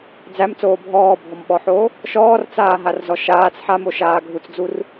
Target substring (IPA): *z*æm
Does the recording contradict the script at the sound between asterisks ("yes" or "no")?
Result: yes